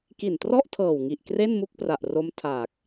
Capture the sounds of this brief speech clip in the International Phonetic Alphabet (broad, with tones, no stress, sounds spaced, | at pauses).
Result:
k i˨˩ n t r ɔ˥˩ ʔ tʰ ɤː˨˩ w ŋ i˨˩ ʔ k r e˥˩ n m u˥˩ k̚ p r a˨˩ ʔ r o˦˥ m tʰ aː˨˩ k̚